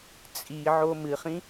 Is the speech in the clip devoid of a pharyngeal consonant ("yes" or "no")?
no